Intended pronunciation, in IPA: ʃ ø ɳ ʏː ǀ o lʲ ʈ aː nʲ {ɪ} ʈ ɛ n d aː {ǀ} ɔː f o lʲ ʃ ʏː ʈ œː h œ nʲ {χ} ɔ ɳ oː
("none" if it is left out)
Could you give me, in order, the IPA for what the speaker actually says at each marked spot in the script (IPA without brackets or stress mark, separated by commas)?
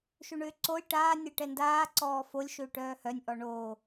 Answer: ɛ, ǀ, ʔ